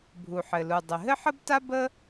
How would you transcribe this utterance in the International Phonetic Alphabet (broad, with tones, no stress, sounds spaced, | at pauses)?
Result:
bʱ u˩ ħ ɘ˩ l u˩ dˤ ɘ˩ ɦ ɘ˥ ħ ə˥ b t a˥ b ə˥